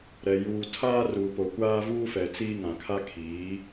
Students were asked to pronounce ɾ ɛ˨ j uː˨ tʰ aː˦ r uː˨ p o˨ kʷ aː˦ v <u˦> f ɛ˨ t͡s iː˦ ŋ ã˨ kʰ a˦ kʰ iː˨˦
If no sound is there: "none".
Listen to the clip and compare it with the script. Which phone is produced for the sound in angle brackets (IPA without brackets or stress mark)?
uː˦